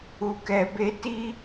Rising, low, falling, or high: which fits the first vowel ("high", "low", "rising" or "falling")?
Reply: low